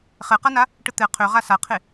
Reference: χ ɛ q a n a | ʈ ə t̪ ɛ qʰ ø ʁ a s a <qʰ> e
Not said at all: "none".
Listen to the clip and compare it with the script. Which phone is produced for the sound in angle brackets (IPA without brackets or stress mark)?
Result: qʰ